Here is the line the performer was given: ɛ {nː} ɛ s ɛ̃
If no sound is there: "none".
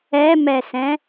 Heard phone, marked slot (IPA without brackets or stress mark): m